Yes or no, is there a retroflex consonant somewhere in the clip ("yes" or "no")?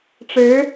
yes